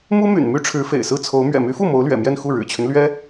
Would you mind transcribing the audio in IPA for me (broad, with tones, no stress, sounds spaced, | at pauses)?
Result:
m u˥ m y̰˨˩ n m y˥ ʈ͡ʂʰ ɻ̩˧˥ f ḛ˨˩ ɪ̯ s ɹ̩˥˩ t͡sʰ o˧˥ ʊ̯ m ɥ ɛ̰˨˩ m y˧˥ f u˥˩ m o˧˥ ʊ̯ l ɥ ɛ̰˨˩ m j ɛ˥˧ n x u˥˩ ɻ ɻ̩˨˩ t͡ɕʰ y˦ n l ɥ ɛ˥